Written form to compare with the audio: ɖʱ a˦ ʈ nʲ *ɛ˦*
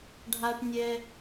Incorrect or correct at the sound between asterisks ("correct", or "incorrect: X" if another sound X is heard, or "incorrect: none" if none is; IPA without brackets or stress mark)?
correct